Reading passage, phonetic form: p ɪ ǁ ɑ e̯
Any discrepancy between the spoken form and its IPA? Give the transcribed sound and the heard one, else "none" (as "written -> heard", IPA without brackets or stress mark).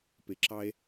none